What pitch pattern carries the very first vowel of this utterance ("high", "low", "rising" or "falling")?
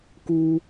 high